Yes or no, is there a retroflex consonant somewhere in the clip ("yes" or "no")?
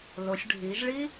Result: yes